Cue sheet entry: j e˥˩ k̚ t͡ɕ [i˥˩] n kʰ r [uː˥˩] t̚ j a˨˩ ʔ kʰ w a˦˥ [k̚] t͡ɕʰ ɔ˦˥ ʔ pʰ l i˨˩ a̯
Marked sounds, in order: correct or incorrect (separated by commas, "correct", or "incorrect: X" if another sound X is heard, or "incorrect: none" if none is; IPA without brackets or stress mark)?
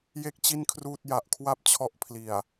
correct, correct, incorrect: p̚